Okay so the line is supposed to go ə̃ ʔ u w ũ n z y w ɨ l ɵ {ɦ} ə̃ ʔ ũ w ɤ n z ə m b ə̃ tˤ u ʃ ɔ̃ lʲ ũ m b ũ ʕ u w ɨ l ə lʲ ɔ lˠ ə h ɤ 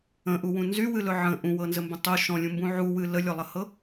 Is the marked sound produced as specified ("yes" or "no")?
no